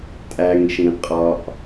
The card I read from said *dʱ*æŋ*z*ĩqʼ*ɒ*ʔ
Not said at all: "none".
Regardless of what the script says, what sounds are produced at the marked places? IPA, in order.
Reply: tʼ, ʃ, ɒ

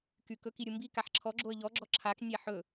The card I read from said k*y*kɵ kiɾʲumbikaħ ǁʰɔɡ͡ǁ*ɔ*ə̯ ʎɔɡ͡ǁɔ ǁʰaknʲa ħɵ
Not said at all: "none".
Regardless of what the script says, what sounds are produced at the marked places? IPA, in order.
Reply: y, o

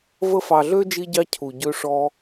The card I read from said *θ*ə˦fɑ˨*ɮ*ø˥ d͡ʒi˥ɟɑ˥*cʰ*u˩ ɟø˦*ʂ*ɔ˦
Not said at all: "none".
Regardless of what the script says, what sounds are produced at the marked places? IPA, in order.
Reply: v, ɮ, cʰ, ʂ

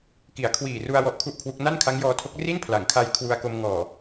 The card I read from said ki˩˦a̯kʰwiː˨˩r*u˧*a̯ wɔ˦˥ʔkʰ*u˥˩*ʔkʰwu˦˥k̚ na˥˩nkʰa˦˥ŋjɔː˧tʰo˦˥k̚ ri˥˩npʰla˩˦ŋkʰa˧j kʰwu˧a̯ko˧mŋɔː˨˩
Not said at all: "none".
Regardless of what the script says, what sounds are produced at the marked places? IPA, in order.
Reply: u˧, u˥˩

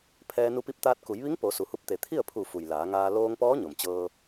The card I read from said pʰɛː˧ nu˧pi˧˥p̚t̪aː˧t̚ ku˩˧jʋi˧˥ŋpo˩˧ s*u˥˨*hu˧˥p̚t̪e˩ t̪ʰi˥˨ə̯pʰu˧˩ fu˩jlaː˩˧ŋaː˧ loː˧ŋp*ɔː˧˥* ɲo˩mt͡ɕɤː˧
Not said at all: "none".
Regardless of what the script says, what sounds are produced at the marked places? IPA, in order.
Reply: u˩, ɔː˧˥

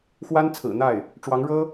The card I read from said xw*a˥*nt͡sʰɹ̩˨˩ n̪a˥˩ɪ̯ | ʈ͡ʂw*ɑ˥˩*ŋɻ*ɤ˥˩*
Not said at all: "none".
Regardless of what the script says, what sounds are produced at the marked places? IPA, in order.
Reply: a˥, ɑ˧˥, ɤ˥

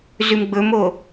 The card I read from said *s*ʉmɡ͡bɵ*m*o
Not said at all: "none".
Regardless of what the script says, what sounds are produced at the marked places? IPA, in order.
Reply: z, m

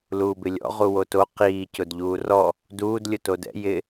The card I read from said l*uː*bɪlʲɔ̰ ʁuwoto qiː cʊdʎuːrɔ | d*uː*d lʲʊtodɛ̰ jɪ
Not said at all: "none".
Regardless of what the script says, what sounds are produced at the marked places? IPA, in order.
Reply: uː, uː

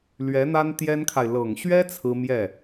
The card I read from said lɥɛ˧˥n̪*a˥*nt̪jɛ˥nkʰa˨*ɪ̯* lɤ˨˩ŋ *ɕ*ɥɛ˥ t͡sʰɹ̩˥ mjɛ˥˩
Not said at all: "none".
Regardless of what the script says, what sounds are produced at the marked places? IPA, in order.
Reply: a˥, ɪ̯, ɕ

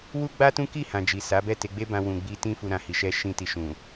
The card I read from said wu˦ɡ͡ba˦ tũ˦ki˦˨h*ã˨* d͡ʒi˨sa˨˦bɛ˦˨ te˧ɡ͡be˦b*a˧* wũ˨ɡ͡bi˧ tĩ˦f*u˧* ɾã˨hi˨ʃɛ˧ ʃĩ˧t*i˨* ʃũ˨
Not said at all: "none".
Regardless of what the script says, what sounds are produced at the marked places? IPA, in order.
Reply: ã˨, ã˧, u˧, i˨

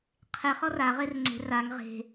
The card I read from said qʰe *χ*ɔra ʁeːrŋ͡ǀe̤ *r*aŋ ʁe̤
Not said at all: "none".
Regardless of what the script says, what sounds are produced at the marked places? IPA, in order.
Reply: χ, r

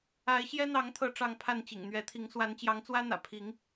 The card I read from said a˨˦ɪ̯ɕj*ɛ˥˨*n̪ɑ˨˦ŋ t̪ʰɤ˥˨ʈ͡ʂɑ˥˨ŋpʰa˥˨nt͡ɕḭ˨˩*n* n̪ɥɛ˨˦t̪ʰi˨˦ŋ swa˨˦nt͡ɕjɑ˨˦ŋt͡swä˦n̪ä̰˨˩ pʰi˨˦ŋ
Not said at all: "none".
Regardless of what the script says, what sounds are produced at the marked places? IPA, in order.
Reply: ɛ˦, ŋ

